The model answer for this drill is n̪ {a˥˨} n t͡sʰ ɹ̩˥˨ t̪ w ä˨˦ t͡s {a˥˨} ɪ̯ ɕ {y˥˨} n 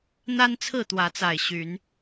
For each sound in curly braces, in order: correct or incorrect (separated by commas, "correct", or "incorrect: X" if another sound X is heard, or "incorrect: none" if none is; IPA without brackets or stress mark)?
incorrect: a˦, incorrect: a˨˩, incorrect: y˨˦